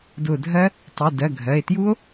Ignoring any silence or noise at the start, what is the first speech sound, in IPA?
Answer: d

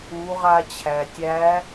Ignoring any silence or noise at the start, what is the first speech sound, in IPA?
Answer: u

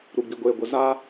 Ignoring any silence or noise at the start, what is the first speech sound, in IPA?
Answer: ɾ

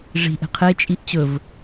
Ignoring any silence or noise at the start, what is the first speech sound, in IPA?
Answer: ʐ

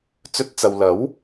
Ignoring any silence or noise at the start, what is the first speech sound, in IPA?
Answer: t͡s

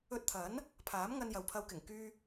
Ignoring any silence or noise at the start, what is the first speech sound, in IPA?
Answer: ɵ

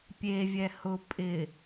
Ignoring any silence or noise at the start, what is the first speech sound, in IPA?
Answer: pʲ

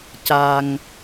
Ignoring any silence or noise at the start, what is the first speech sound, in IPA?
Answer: c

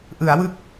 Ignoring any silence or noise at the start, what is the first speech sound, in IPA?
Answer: ʔ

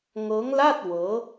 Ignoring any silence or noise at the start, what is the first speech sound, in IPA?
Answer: ŋ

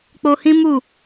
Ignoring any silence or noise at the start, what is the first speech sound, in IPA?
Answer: k͡p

